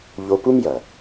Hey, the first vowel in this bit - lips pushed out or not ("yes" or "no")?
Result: yes